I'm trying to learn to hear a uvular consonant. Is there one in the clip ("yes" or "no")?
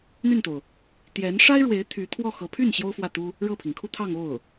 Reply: no